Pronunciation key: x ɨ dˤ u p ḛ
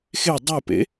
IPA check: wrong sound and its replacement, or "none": ɨ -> e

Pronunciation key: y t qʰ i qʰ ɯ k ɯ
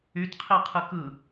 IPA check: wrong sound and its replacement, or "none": none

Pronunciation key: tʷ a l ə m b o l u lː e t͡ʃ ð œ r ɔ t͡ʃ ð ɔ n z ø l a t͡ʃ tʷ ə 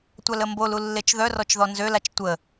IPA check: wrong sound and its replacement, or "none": none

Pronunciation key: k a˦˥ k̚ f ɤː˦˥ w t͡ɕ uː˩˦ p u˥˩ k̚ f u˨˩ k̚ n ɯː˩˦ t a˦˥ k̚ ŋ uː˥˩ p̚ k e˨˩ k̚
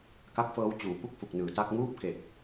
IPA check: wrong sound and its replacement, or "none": none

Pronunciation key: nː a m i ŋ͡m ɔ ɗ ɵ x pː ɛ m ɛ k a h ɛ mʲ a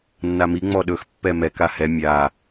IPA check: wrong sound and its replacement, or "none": none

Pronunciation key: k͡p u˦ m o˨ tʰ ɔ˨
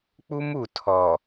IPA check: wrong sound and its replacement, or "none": o˨ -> u˨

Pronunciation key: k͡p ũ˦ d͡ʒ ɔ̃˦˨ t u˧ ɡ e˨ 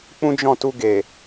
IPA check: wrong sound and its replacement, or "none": none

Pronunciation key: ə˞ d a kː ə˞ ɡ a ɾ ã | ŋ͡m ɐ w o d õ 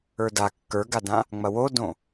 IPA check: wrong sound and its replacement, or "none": ɾ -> d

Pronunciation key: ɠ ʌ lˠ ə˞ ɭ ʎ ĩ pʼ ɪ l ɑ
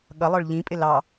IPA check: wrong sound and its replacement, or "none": none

